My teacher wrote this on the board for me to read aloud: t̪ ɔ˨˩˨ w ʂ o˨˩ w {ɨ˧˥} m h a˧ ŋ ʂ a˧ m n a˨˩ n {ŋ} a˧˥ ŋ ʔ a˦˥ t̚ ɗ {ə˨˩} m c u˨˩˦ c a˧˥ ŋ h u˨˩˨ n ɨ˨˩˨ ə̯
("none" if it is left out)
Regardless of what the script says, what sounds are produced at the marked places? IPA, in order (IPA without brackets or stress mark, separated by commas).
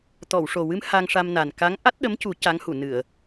ɨ˧˥, k, ə˧˥